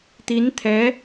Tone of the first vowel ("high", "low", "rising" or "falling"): rising